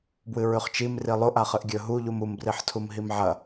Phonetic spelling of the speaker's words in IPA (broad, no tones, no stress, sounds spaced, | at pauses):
b w ɨ ɹ ʉ χ t͡ʃ i m r i lˠ o ʔ a χ ɨ ʔ ɡʲ ɵ ɦ u ʎ u m u m b r i ħ tʰ u m ɦ i m ʕ ɐ